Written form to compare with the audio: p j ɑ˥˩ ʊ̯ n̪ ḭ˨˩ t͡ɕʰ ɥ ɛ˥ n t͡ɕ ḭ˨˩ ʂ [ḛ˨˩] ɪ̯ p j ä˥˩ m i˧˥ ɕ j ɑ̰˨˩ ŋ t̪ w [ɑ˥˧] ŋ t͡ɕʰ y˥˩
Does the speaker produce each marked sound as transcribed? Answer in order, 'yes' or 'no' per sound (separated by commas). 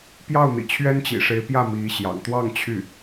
no, yes